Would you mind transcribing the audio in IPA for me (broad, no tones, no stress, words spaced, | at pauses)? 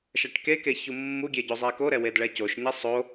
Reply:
ʃaʈkeke çumːuɡʲe ɟozˤɛkoɾɛ wedɭɛcoʃɲɛ sˤo